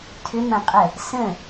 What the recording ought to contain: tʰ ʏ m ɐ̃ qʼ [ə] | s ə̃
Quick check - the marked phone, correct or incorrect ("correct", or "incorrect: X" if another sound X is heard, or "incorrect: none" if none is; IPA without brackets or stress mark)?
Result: correct